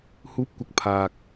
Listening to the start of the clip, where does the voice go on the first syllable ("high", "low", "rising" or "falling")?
rising